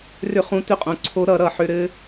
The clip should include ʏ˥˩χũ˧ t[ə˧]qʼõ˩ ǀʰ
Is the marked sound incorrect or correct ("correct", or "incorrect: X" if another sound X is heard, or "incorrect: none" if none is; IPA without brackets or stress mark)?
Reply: incorrect: ʏ˧